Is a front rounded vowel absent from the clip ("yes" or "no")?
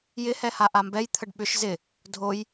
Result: no